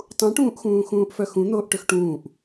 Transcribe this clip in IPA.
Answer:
tˤ ũ ʈ ũː ʔ x ũː x ũː ʔ f œ x ũ n̪ oː ʔ ʈ ø x ʈ ũː ʔ

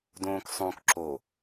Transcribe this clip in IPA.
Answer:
d õː k sˤ õ k ǁ o

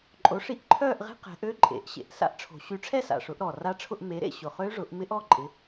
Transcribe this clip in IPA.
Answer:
ǃʼ o˨˦ ʂ i˦˥ ʔ ǃʰ œː˥˧ ʔ ʁ e̤˦˥ q ɛ̤˨˦ ʔ ø˦˥ ǃʼ ḛ˨˩˦ ʔ ɕ ḛ˨˩ ʔ s a̰˦˥ ʔ ʈ͡ʂʰ o̤˨˩˦ ɕ y˨˦ ʈ͡ʂʰ ɛ˥˧ s a̰˨˩ ʂ ʊ˨˩˦ ʔ ɾ ɔ˨˩ r a˦˥ ʈ͡ʂʰ ʊ˥˧ ʔ m e˨˦ ɾ ḛ˥˧ ɕ ʊ˨˩ χ ø˦˥ ʐ ʊ˨˩˦ ʔ m ɪ˦˥ ʔ ɔ˥˧ ǃʼ ɪ˨˦

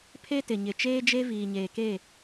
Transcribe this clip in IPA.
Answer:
pʰ e˦ t ɪ˨ ɲ ɪ˨ t͡ʃ eː˦ d͡ʒ e˦ v iː˨ ɲ eː˨ k e˦˨

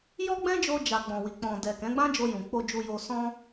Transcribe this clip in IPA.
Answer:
j ɔ˦ ɡ͡b ɛ̃˦ d͡ʒ o˧ d͡ʒ a˨ ɡ͡b ɔ̃˨ w i˨ k͡p ɔ̃˨ d ɛ˨ k ɛ̃˨˦ ɡ͡b ã˦ d͡ʒ o˧ j ũ˨ k͡p o˧ d͡ʒ u˧ j o˧ s ɔ̃˦

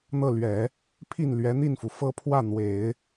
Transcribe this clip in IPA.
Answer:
n̪ ɤ˥˩ l ɥ ɛ˨˩˦ | pʰ i˥˩ n l ɥ ɛ˧˥ n̪ i˥˩ n f u˩ f ɤ˥˧ pʰ w ä˥˩ n̪ w e˨˩˦ ɪ̯

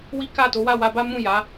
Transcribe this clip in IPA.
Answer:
w i˦ k a˦˨ t o˨˦ w a˦˨ w a˧ b a˦ m ũ˦˨ j a˨˦

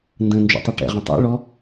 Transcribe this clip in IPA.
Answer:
n d ə̃ n d͡ʒ ṵ tˤ ɛ ʈ ɛ̰ ʁ ə̃ tˤ ṵ ɭ ɔ

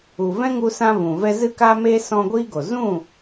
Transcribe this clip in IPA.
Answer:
u˨ v ɛ̃˦ ŋ u˧ s ã˧ v ũ˨ v ɛ˧ z ɨ˦ k a˦ m eː˦ s ɔ̃˧ ɡʷ iː˦ ɡ o˨ z ũ˦˨

